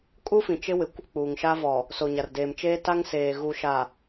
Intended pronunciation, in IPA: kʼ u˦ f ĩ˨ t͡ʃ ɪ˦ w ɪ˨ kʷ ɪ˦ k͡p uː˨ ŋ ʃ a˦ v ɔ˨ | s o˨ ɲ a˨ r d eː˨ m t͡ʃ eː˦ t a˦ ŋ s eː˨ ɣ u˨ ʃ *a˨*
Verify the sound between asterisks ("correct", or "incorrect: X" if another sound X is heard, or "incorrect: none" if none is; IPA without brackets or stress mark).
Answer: correct